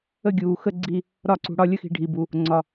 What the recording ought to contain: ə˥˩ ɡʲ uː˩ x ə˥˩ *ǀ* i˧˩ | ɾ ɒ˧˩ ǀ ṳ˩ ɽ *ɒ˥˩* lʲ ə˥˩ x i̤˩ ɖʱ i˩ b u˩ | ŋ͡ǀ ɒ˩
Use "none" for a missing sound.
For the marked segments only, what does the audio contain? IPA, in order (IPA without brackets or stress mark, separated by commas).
ɡ͡ǀ, ɒ˥˩